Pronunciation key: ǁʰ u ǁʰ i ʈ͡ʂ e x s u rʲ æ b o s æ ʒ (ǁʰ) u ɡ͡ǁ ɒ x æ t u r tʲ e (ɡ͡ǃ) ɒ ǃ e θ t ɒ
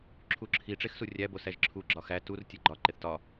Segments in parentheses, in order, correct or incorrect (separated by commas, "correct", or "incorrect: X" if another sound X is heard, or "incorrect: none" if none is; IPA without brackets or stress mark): correct, correct